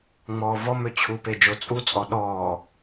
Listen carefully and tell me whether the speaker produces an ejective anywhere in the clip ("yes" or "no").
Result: yes